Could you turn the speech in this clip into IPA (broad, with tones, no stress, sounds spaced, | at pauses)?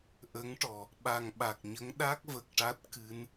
ʔ ə˧˥ ŋ ʈ ɔ˨˩ | ɓ a˨˩ ŋ ɓ a˨˩ k̚ ɲ ə˧˥ ŋ ɗ a˦˥ k̚ v ə˨˩ k̚ ʈ a˦˥ t̚ k ɨ˧˥ n